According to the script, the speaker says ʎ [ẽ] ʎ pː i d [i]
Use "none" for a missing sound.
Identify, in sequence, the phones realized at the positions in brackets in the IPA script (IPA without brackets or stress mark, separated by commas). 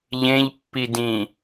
ẽ, ĩ